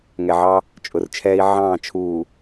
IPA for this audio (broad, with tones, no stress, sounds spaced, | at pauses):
ŋ ɛ˨ ʕ ɑ˦ | t͡ʃʼ ʊ˨ r t͡ʃʰ ɛː˦ i̯ ʕ ɑ̃ː˦˨ t͡ʃʰ uː˨